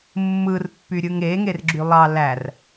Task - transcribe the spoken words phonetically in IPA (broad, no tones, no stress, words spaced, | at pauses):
mːɯrpːyɾʲɯŋ eŋerɡ͡ǁy lˠɑ lær